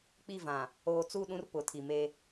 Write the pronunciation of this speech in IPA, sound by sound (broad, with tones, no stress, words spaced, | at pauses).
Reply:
k͡pi˦˨vã˨ | oː˨t͡su˦˨ɗũ˦r pʊ˨˦tʰi˨me˦